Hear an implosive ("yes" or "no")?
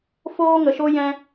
no